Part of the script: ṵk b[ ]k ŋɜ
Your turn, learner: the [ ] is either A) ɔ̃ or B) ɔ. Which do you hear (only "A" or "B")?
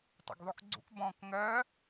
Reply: A